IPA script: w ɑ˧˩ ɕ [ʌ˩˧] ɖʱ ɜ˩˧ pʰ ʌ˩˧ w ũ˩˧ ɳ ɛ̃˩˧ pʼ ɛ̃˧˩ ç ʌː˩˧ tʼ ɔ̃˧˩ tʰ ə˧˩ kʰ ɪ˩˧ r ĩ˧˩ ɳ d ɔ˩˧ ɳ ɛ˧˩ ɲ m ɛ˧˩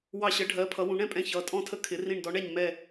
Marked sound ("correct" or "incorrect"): incorrect